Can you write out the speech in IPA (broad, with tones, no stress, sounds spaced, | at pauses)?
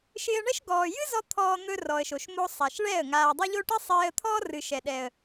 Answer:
ʃ ɪː˧ ə̯ ɳ ɛ˦ ʃ ɡ ɔː˨ j ɨ˦ z ɔ˧ t̪ʰ ɔː˧ n̪ ɵ˧ r ɔ˨ ə̯ ʃ o˨ ʃ m o˦ sˤ a˨ ʃ ɭ ɛ˦˨ ə̯ ŋ aː˨ dˤ o˦ ʎ o˦ ʈ i˦ sˤ eː˧ ə̯ t̪ʰ ɔː˦ r ɨ˨ ʃ ɛ˨ ɗ ɛ˨ ə̯